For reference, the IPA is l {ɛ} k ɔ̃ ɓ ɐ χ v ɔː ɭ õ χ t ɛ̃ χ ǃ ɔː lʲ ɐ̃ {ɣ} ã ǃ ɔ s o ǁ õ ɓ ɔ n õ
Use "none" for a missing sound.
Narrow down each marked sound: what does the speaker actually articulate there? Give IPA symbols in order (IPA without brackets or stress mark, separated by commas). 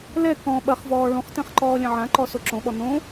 ɛ, ʕ